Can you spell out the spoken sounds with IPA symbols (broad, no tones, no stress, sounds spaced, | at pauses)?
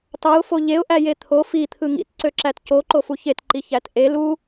t ɑ ʊ̯ f o ʎ e ʊ̯ ʔ æ j e t̪ʰ o f i t̪ʰ ɯ ŋ ḭ t ǀ ø ǁ æ t c o ǃ o f u ç e t ǃ i ç æ t ʔ e l u